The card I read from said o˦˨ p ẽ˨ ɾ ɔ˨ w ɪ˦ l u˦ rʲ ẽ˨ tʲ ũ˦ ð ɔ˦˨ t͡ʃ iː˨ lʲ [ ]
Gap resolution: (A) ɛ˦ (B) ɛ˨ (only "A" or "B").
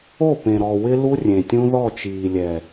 B